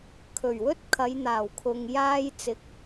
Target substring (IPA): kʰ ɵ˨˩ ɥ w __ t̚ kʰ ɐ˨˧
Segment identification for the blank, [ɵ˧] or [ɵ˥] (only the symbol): ɵ˥